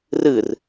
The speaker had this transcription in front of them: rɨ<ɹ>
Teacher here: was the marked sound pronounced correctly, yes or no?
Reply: no